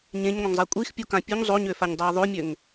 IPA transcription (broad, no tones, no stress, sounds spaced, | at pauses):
ɲ ẽ ɲ ŋʷ ə̃ ŋ zˤ a kʷʼ i x pʲ u k ã pʲ u ɲ zˤ o ɲ ø f a ɲ dˤ əː ðˤ o mʲ ø ŋ